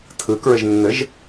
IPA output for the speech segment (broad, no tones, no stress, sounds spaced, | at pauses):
tʰ ɯ k ɹ ɘ ʒ nː ɘ ʒ